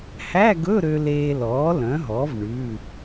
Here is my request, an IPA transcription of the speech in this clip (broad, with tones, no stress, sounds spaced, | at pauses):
h æ˧˥˧ ɡ ɵ˧˥˧ ɾ ø˧ l eː˧ l ɔː˩˥ l œ̃˩˥ ɦ ɔ˩˥ v ɳ ʉ˩˧˩